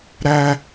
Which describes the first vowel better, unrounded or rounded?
unrounded